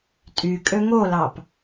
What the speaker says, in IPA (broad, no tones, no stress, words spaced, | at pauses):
tʼykʼø ŋolɑp